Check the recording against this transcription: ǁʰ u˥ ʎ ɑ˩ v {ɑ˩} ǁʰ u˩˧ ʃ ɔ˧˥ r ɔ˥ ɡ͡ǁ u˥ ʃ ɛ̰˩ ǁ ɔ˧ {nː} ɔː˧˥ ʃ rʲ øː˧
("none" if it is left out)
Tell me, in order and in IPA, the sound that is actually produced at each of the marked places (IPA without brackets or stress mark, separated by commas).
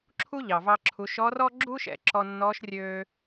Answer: ɑ˧, nː